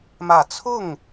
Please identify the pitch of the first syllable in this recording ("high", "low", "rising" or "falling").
low